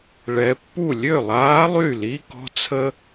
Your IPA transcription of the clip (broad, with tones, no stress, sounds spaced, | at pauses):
ɭ ɛ˩˧ pː u˥˩ lʲ ø˥˩ lˠ aː˧˥ lˠ y˥˩ l i˧˥˧ k ɔ̤˥ t͡sʰ ə˥